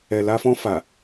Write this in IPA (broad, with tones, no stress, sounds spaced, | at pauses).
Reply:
ɛ˨ l a˧ f ɔ̃˧ f a˨